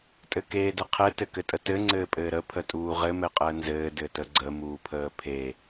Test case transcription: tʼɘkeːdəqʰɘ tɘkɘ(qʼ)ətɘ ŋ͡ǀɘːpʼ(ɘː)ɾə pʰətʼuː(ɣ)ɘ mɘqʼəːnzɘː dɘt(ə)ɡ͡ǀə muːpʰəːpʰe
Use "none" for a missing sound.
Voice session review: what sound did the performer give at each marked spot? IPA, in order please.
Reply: tʼ, ɘː, ʁ, ə

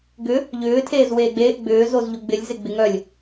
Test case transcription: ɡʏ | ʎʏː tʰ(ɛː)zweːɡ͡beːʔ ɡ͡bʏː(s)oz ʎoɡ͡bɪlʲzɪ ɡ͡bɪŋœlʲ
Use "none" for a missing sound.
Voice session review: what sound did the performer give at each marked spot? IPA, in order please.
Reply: eː, z

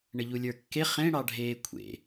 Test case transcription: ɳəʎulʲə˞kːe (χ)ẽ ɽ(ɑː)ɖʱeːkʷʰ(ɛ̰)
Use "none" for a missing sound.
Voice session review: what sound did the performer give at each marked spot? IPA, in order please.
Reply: χ, ɑ, ḛ

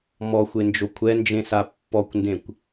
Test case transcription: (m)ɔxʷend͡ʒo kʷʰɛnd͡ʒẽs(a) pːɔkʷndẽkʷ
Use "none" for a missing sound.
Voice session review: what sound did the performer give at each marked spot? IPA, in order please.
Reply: m, a

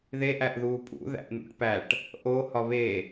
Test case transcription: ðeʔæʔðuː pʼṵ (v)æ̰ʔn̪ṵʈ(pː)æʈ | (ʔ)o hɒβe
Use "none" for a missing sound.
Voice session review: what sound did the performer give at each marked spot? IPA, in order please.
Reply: ð, p, ʔ

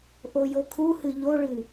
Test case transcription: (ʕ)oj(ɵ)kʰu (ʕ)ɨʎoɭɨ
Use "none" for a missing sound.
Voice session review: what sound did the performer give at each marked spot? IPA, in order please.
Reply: ʔ, o, h

